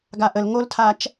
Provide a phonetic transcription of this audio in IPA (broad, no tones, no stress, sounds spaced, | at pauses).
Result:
ɡ a ʔ ə l ŋ o l tʰ a t͡ʃ